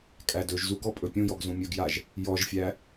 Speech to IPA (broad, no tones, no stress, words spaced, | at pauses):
kʼædɵʒzuɡ ɔpʼɵpʲũjɔɡ zũmʲɵɡjaʒ | jɔʒfʲæ